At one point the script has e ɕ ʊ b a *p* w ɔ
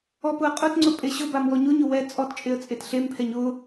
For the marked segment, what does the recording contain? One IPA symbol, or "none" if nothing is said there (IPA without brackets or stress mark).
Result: m